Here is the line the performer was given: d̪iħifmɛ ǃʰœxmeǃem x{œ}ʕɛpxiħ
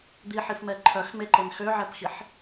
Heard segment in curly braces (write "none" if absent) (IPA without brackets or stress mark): ø